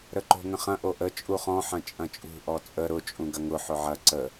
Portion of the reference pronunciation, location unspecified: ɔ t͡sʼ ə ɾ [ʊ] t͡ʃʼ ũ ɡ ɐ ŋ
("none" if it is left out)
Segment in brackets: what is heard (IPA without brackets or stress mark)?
ʊ